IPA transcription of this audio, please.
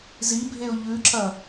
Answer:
z i bʱ e ʊ̯ ʎ ʉ ǁ ɐ

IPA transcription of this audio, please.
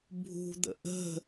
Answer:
bʱ ṳ d̪ ə̰ ʔ ə̤

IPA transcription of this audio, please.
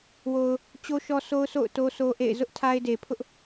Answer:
w o˨ ʊ̯ | t͡ɕ o˦ ʃ ɔ˦ s o˦ ʊ̯ sʰ o̰˦˨ ʊ̯ t o˦ s o˦ ʔ ḛ˦˨ ɪ̯ z ʊ˦ ʔ tʰ a˦ ɪ̯ d e˨ pʰ ʊ˦ ʔ

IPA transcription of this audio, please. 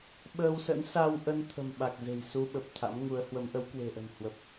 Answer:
ɓ əː˧ w s ə̰˧˥ n s a˧ w ʔ ə˧ n t̪ʰ ə̤˨˩ m ɓ a˨˩ k̚ z e̤˨˩ j s u˧ ɓ ə˨˩ p̚ t̪ʰ a̰˧˥ m ŋ u˨˦ ə̯ h w ə˨˦ m ʔ ə˨˦ w k w e̤˨˩ ʔ ə̤˨˩ n h w ə˨˩ p̚

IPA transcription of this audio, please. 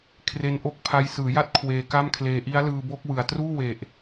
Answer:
kʰ r e˦˥ n ʔ o˦˥ k̚ pʰ a˦˥ j s ɯː˩˦ j a˦˥ t̚ kʰ w eː˧ k a˥˩ m kʰ l eː˧ ʔ i˦˥ a̯ l ɯː˧ b o˦˥ k̚ w ɯ˨˩ a̯ t r uː˥˩ w e˨˩ ʔ

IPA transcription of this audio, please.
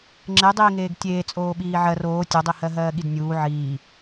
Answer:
ŋ͡ǁ e dˤ iː ŋ eː ɡ tʲ eː t͡sʼ oː ɓ iː ʕ ɜ r oː tʲ o dˤ i h ɜ ɦ ɜː ɠ i d nʲ uː ʕ iː

